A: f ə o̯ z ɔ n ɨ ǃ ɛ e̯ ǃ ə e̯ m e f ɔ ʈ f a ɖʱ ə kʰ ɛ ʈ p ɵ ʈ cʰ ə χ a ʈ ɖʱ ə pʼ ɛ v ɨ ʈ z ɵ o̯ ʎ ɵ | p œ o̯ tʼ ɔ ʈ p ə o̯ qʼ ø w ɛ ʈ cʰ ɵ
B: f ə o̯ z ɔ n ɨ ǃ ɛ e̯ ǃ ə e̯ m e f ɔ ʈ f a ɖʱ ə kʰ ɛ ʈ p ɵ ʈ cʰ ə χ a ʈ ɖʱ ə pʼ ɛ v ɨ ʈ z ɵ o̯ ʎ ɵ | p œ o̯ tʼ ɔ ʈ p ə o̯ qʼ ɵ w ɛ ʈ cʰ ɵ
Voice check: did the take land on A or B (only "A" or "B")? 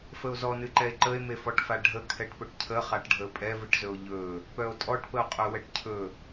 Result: B